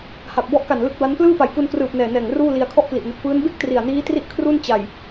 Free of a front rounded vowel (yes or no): yes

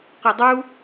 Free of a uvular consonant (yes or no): no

